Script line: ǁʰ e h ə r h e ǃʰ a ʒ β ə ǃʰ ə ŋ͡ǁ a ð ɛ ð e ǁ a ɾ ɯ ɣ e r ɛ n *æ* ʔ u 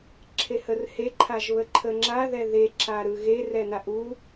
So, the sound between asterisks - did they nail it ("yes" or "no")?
no